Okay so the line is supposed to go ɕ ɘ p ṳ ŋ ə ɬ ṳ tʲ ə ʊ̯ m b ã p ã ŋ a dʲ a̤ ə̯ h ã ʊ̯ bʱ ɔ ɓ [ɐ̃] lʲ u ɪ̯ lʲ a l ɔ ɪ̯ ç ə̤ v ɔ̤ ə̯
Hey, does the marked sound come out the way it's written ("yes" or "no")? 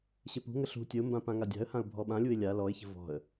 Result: no